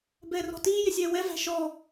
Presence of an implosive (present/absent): absent